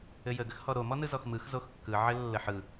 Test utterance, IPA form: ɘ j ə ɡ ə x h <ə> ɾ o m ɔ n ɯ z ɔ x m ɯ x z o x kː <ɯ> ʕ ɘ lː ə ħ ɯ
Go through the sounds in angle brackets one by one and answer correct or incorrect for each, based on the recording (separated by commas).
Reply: incorrect, correct